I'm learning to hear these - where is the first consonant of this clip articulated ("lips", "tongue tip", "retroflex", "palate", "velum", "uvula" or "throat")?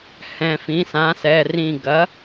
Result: throat